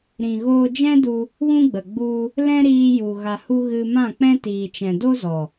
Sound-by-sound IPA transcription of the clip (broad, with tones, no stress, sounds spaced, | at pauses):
ɾ ĩ˨ ɣ oː˧ d͡ʒ ɛ̃˦ d u˧ | w ũ˦ ɡ͡b ə˨ ɡ͡b u˦ | l ɛ̃˦ ɾ iː˧ j u˨ ɣ a˨ h u˧ ɣ ɨ˧ m ã˦˨ k͡p ɛ̃˦ t iː˨ t͡ʃ ɛ̃˨ d o˦ z ɔ˨